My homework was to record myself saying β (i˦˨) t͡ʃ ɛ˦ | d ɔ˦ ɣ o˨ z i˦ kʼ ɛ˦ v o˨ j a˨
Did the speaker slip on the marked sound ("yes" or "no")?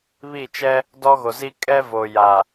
no